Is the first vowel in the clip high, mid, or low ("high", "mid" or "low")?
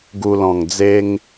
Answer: high